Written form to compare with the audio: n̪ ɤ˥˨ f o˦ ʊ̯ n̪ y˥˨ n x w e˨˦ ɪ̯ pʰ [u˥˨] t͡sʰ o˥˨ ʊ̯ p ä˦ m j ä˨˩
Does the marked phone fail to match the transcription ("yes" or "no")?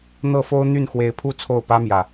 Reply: no